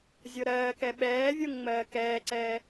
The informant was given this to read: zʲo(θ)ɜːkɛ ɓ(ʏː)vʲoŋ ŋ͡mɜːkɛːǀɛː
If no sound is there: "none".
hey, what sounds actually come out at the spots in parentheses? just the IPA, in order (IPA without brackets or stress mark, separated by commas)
ɾ, ɛː